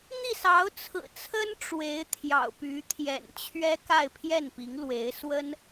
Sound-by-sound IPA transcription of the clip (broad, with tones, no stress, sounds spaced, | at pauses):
n̪ i˥˩ s ɑ˧˥ ʊ̯ t͡sʰ ɹ̩˨˩ t͡sʰ ə˥ n ʈ͡ʂ w e˧˥ ɪ̯ t̪ʰ j ɑ̰˨˩ ʊ̯ p y˧˥ t̪ʰ j ɛ̰˨˩ n t͡ɕʰ ɥ ɛ˥ k a˥˧ ɪ̯ pʰ j ɛ˥˩ n p i˧˥ ŋ l w e˧˥ ɪ̯ s w ə˥ n